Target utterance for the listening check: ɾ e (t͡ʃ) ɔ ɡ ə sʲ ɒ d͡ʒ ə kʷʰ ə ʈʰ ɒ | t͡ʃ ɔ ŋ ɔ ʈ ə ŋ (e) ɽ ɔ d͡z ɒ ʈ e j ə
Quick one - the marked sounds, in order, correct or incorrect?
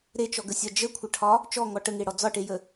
correct, correct

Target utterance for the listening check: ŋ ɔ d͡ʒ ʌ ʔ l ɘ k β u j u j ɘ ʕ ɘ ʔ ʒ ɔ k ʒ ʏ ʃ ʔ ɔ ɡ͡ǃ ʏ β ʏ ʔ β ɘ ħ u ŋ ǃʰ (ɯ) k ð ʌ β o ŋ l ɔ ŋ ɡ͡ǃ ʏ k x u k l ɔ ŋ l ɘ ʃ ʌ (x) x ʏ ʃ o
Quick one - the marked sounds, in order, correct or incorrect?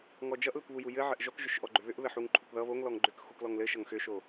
incorrect, incorrect

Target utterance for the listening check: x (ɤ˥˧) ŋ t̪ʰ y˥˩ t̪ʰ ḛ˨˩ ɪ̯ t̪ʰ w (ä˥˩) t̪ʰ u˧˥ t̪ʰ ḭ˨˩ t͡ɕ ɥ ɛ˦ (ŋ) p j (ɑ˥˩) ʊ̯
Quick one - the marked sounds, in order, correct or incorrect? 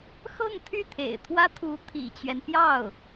correct, incorrect, incorrect, correct

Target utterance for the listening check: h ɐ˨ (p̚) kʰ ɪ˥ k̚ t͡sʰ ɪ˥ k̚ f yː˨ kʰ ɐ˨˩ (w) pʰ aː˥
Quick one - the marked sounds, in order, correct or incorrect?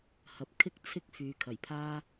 correct, incorrect

